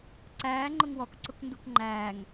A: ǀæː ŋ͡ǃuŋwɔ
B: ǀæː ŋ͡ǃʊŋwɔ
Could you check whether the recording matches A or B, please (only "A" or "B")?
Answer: B